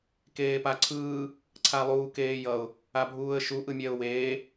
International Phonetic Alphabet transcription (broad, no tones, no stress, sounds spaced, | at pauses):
k eː p a ǀʰ ɯː | ǀʰ a lˠ uː k eː j ʌ ʊ̯ | a bʱ uː ə̯ ʃ u ʔ ɯ mʲ ɛ ʊ̯ w eː